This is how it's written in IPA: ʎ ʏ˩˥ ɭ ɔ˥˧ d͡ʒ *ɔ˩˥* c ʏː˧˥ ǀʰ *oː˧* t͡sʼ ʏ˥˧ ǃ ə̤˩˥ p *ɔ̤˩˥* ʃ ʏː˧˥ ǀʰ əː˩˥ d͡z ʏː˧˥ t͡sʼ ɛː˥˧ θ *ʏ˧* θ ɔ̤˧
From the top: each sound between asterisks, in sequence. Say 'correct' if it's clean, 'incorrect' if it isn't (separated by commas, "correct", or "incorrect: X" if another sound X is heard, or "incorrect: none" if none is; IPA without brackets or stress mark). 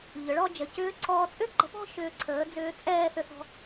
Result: incorrect: ə˩˥, incorrect: ɔː˧, incorrect: ɔ̤˥˧, correct